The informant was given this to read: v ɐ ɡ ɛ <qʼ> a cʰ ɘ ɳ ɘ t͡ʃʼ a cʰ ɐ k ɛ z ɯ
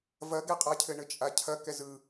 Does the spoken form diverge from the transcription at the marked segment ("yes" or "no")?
no